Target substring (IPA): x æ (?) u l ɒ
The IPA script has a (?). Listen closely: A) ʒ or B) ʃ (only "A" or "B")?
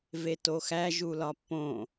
A